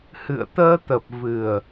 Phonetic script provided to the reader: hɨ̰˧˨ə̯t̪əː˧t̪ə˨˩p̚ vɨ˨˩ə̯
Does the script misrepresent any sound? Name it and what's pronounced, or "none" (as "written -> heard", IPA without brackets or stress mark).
none